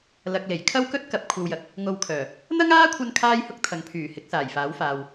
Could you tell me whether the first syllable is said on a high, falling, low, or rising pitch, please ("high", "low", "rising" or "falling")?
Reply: low